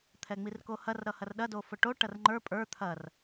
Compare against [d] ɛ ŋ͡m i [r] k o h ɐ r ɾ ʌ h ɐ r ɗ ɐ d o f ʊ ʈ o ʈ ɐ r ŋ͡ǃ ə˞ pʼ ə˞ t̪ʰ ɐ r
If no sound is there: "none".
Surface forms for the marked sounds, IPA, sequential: t̪ʰ, r

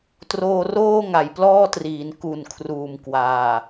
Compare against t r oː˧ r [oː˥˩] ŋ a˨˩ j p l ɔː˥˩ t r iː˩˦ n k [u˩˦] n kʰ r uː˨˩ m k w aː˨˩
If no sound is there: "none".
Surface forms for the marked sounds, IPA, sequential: oː˥˩, u˨˩

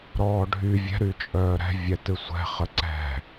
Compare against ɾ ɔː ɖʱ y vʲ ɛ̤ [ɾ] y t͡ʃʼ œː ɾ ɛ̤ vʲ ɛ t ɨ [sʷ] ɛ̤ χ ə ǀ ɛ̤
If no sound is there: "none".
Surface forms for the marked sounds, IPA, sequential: ɾ, sʷ

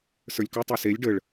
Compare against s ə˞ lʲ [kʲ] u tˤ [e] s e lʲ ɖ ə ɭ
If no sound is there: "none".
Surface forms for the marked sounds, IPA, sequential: k, e

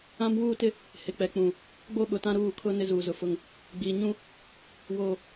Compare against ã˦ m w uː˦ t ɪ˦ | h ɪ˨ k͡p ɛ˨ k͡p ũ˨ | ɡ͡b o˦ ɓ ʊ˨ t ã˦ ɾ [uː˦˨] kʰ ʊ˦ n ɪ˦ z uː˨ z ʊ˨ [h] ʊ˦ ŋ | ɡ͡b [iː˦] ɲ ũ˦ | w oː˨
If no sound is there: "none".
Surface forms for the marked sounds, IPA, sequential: uː˦˨, f, iː˨

